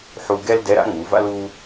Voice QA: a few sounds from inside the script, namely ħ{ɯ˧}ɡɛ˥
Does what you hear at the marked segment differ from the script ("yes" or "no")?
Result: yes